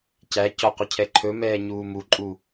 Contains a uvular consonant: yes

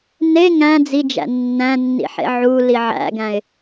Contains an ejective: no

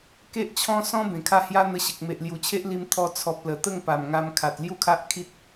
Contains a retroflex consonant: no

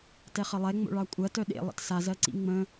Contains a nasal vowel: yes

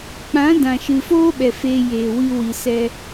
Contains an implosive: yes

